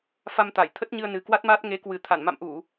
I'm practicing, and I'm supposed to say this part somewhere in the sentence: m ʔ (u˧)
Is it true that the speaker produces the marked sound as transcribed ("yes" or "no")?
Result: no